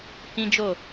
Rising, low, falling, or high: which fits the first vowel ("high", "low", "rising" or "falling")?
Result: high